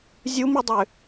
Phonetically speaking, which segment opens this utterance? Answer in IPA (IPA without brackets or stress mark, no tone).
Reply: zʲ